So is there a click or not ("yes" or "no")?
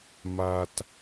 no